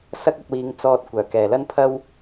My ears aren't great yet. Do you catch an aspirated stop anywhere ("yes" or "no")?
yes